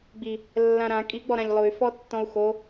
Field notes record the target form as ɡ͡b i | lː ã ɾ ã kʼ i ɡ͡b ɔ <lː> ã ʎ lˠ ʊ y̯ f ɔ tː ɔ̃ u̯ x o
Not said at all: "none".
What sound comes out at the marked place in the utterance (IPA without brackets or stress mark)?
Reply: ɾ